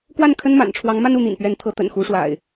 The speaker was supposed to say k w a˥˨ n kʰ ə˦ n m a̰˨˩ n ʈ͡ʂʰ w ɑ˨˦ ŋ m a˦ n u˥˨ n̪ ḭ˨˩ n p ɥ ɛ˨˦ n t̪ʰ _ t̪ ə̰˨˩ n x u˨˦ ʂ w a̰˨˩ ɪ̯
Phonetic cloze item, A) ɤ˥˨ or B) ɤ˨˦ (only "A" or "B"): B